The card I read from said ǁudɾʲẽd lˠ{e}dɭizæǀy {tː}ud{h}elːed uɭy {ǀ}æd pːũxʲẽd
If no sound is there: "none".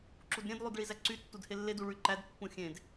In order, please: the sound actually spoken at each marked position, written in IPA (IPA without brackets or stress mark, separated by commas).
y, tː, h, ǃ